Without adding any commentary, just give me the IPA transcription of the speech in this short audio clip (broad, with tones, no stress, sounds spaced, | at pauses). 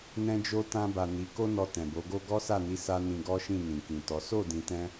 n ɛ̃˦ d͡ʒ o˦ t ã˧ b a˨ n i˨˦ k o˦ n ɔ˧ t ɛ̃˨ b o˨˦ ɡ o˦ ɡ ɔ˦ s a˦˨ n i˨˦ s a˦ n ĩ˧ ɡ ɔ˦ ʃ ĩ˦˨ n ĩ˨ k ĩ˨ t ɔ˨˦ s o˦˨ d ĩ˨ t ɛ̃˧